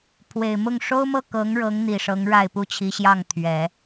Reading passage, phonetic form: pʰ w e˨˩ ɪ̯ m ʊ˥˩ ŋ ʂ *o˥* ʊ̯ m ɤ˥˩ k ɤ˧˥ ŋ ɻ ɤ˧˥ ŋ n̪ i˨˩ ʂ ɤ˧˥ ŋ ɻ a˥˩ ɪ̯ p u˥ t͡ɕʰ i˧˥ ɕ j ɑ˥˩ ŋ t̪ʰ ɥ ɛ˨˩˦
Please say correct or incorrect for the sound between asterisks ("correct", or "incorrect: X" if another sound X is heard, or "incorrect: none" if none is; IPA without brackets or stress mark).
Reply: correct